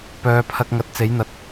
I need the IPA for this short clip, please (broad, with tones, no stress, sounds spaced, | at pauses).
p œː˨˧ pʰ ɐ˧ k̚ ŋ ɐ˨˥ t̚ t͡s e˨˥ j n̪ ɐ˨˥ t̚